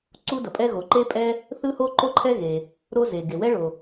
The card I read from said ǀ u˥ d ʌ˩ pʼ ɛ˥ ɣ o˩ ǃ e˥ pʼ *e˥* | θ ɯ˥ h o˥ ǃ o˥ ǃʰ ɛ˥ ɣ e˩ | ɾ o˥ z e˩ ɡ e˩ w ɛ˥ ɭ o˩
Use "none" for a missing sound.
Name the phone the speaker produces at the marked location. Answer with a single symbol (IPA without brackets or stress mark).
ɛ˥